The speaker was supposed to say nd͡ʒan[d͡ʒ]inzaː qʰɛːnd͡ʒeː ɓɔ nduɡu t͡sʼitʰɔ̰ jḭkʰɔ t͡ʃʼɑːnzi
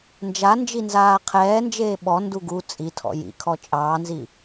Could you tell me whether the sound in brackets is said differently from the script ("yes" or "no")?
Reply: no